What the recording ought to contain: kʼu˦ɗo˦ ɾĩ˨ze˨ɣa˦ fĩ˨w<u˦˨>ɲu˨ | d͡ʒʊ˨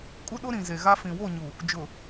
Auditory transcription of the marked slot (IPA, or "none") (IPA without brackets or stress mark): o˦˨